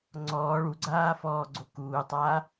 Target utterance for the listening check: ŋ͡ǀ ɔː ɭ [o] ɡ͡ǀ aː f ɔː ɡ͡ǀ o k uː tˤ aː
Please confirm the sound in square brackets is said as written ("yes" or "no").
no